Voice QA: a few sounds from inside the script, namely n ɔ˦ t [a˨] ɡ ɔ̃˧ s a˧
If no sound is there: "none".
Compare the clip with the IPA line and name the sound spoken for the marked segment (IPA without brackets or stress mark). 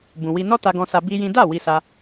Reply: a˧